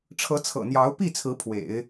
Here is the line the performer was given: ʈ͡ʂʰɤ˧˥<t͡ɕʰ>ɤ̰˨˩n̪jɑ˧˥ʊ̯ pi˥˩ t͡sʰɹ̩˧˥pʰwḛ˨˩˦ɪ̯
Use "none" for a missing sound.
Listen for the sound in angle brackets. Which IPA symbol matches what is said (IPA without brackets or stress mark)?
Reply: t͡sʰ